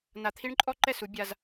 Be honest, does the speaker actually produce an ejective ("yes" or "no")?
yes